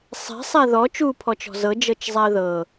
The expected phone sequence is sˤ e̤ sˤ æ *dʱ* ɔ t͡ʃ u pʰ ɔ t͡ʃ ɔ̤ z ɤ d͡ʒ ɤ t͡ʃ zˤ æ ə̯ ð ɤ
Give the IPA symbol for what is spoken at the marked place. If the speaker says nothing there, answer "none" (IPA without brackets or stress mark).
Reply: ð